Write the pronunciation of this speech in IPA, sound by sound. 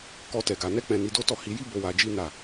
k ɔ˦ t ɛ˧ ɡ a˧ n ɛ˦ k͡p ɛ̃˧ n i˧ d o˦ t ɔ˦˨ h i˧ j i˦ b o˧ w a˧ d͡ʒ i˦ n a˦˨

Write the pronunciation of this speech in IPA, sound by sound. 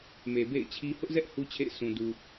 m e˨ b ḛ˦˨ ɪ̯ t͡ɕʰ i˦ h ʊ˦ ʔ z ɛ˦ ʔ h u˦ t͡ɕʰ ḛ˦˨ ɪ̯ s ũ˨ d u˨

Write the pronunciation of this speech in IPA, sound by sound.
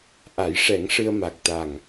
ʔ a˨˩˦ j ʂ ɛ˨˩˦ ŋ ʂ ɨ˧ ə̯ m a˨˩ k̚ t̪ a˨˩ ŋ

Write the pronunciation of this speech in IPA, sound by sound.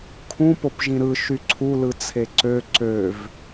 kʰ ũ p o p ʒ ĩ ɾ ɯ ʃ y ǀʰ u l ɯ t͡sʰ e ǀ ø ǀ ø v

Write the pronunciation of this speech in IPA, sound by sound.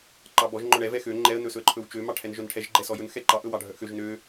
ǃ ɑ b ɔ ʒ ŋ͡ǃ ɔ ɳ ɛ v ɛ x ø ŋ͡ǃ ɛ ə̯ n ɵ s ɵ ə̯ ǃʰ ɵ w t͡ʃ ø m ɑ ʈʰ ɛ n ʒ œ n ʈʰ ɛ ʒ ɡ͡ǃ ɛ s ɔ j ɵ n x ɛ ǃ ɑ ʔ ɵ w ɑ ɖʱ œ ʔ x ø ʒ n ø

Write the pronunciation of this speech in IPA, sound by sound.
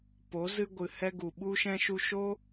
p o˨˦ z ɨ˧ ɡʷ ɨ˨ h ɛ˧ ɡ u˨ ɓ u˧ ʃ ɛ̃˧ ʃ u˧ ʃ o˦

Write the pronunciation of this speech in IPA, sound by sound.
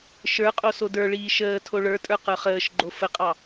ʃ ə˞ qʼ o s o d ə˞ ɭ iː ʃ əː tʰ o ɭ ə˞ tʼ ə˞ q ə˞ χ əː ʃ ɡ͡ǃ o f ə qʼ ɑ

